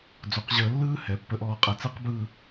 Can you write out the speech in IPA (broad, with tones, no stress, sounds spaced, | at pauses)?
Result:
d͡z o˩˧ q ʑ əː˧ lː ɯː˥ h ɛ˩˧ pː ə˧˩ ʔ ɔː˧˩ qʼ ɛ˧˩ t͡s ɛ˥ q b ɯ˥˧